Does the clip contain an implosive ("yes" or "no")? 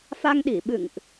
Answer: yes